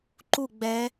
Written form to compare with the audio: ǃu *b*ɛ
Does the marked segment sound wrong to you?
yes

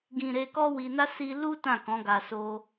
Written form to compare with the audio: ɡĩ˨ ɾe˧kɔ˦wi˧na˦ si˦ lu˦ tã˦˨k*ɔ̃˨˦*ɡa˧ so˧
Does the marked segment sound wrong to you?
no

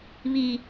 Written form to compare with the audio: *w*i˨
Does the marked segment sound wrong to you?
yes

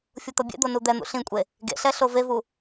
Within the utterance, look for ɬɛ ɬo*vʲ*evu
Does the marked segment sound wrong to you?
yes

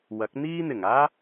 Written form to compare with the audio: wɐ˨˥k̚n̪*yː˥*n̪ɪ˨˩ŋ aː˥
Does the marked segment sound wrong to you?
yes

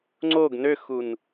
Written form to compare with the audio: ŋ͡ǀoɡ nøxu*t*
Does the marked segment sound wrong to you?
yes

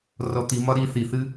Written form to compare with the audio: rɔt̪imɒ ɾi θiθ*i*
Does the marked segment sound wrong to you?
yes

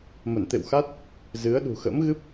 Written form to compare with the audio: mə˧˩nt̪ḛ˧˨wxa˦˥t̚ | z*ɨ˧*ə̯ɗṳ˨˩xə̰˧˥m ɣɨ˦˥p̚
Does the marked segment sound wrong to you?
yes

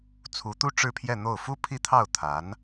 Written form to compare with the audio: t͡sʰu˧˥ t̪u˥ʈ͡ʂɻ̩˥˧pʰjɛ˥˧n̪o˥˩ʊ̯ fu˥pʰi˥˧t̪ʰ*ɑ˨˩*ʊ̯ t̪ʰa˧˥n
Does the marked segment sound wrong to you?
yes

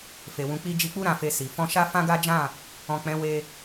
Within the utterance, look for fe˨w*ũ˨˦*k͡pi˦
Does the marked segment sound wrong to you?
no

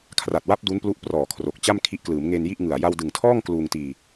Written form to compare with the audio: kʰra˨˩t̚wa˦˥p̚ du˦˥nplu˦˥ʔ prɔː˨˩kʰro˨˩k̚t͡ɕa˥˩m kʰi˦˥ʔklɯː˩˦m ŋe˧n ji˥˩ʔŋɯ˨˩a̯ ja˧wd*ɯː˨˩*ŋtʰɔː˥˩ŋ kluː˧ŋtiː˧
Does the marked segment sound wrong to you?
yes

